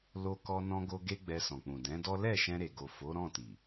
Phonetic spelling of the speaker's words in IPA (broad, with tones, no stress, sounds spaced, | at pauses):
l o˧ k ɔ˧ n ɔ̃˧ ɡ o˧ ɡ e˦ ɡ͡b ɛ˧ s ɔ̃˨ k͡p ũ˨ d ɛ̃˨˦ d ɔ˦ l ɛ˦˨ ʃ ɛ̃˧ ɾ e˨ ɡ o˨ f o˨˦ ɾ ɔ̃˦˨ t i˨